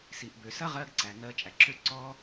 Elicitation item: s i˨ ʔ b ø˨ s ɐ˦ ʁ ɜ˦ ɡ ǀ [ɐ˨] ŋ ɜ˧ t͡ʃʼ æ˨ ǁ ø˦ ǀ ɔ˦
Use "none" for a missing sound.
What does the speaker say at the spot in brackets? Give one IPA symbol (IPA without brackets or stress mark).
æ˨